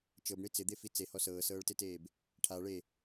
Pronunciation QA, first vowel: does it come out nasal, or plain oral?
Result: oral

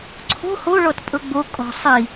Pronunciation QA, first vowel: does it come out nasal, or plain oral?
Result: oral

